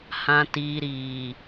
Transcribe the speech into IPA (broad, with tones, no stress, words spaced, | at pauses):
hã˨tiː˨ɾiː˨